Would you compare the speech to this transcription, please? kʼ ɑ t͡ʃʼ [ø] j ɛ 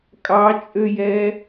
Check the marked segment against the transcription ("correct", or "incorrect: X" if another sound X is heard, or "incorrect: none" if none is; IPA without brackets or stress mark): correct